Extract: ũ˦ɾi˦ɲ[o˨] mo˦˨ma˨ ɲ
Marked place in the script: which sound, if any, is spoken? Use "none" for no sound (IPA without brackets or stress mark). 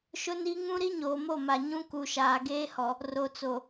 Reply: oː˨